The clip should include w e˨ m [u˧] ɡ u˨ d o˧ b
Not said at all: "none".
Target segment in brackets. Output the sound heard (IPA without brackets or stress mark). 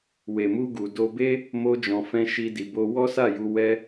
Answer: u˧